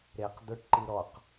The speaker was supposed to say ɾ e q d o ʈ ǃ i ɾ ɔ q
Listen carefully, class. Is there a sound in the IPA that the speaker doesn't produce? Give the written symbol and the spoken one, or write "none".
none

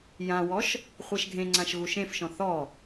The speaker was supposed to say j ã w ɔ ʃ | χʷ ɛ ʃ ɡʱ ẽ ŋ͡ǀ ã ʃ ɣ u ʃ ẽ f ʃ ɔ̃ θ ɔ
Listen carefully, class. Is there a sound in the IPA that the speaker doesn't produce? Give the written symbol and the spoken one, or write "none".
none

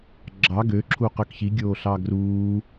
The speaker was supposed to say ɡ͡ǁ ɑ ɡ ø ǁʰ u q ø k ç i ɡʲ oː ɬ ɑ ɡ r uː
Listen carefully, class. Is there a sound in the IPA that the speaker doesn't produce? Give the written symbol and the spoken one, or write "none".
none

